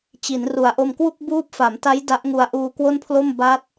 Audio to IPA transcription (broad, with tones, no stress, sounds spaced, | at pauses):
t͡ɕ i˩˦ n r u˨˩ a̯ ʔ o˧ m k w u˥˩ k̚ b uː˦˥ p̚ f a˩˦ m t a˦˥ j d a˦˥ ʔ ŋ u˧ a̯ ʔ uː˧ k w o˥˩ n pʰ l o˥˩ m b a˦˥ t̚